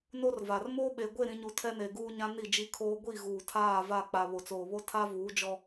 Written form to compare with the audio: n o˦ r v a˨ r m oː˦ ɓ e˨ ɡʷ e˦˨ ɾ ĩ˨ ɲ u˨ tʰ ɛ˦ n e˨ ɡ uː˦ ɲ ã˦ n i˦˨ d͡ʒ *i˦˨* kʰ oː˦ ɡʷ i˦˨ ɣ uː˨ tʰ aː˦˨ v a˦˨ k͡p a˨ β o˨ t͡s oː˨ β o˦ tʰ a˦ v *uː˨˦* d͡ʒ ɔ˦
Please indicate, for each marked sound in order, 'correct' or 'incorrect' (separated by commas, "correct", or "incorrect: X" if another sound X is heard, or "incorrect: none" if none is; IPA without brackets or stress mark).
incorrect: i˦, correct